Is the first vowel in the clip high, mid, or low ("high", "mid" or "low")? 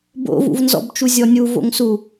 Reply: mid